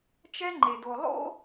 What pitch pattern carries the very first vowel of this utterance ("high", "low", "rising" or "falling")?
high